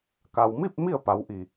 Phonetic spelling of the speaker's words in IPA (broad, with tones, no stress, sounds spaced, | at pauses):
k a˩ w m i˥˨ p̚ m i˥˨ ə̯ p a˩˧ w ʔ i˩